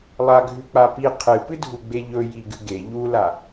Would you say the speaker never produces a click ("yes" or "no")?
yes